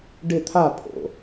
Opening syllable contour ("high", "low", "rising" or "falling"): falling